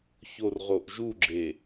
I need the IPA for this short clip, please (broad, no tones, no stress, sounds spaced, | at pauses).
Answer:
ç o r ʁ o ʔ ʒ u ɡ͡ǁ e